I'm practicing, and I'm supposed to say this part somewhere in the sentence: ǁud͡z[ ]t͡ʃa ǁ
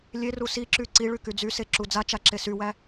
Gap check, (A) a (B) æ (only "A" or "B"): A